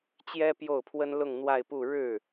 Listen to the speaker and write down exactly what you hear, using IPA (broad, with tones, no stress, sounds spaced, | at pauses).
t͡ɕ j ɛ˥ p j o˥˩ ʊ̯ pʰ w ə˥ n l ʊ˥˧ ŋ n̪ w a˥˧ ɪ̯ p u˥˧ ɻ ɻ̩˥˩